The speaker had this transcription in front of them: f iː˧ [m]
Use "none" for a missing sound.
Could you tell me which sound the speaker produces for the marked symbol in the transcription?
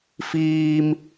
m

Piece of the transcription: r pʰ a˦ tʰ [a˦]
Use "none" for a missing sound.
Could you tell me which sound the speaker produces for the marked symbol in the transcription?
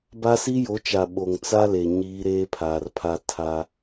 a˦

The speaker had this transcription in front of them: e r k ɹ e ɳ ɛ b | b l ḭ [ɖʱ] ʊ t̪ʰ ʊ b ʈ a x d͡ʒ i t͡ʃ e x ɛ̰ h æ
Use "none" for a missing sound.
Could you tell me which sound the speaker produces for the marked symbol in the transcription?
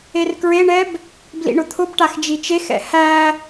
ɳ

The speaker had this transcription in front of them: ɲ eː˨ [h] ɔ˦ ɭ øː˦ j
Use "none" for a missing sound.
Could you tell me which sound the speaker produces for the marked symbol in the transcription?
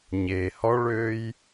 h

